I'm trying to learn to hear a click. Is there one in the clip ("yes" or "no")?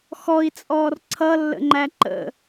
yes